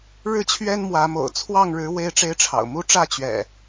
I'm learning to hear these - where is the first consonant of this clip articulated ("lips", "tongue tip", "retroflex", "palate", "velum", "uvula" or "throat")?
retroflex